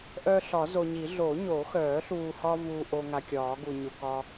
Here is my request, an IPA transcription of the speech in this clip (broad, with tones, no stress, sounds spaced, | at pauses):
ʔ œː˦ ɬ ɒ˨˩˦ z o˨ ɲ i˨˩˦ ɮ o˨˩˦ ɲ o˨˩˦ x œː˨˩˦ ɬ uː˨ h ɒː˦ v uː˨ ʔ o˨ ŋ a˨ kʲ ɒː˨˩˦ ɡ u˨ ɲ u˨ k ɒ˦